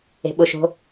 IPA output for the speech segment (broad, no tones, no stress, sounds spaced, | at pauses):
e̤ ɓ ʊ ʃ o̤